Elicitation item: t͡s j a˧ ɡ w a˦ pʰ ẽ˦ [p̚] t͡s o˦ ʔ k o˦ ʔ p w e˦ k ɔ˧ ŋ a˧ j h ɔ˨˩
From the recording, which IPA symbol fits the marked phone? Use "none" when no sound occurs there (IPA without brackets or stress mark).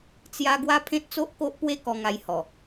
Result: t̚